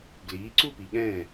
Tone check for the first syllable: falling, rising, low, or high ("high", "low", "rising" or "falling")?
rising